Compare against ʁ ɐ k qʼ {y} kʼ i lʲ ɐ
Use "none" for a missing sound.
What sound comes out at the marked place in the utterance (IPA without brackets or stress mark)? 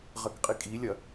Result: i